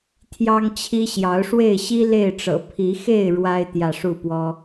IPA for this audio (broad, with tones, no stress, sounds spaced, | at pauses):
t̪ʰ j ɑ˦ ŋ t͡ɕʰ i˦ ɕ j ɑ˨˦ ʊ̯ ʂ w e˥˨ ɪ̯ ɕ i˦ l e˥˨ ɪ̯ ʈ͡ʂ ɤ̰˨˩ pʰ i˨˦ x e˥˨ ɪ̯ ɻ w a˦ ɪ̯ t̪ j ä˥˨ ʂ u˥˨ p w ɔ˦